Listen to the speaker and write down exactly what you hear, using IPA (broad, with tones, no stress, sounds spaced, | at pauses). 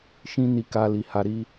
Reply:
ʃ ĩ˦ n i˧ k a˧ l i˨ h a˧ ɾ i˦